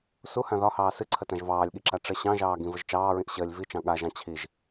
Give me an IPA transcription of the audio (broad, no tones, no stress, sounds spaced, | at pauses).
s u h ã ð ɒ h ɑː s ɨ ǀʰ ə t ã ʒ v ɑː lʲ ɠ i ǁ a ʈ͡ʂ ə ɕ ɑ̃ ʒ ɑː ɡ ĩ v ə ʒ t͡ʃ ɑː ɹ ĩ ʔ ɕ əː lʲ v i t͡ʃ ɑ̃ ɠ a ʒ ɑ̃ t͡ɕʰ i ʒ